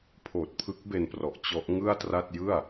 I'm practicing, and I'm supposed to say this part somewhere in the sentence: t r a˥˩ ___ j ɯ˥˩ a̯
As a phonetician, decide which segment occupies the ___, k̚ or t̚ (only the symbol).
t̚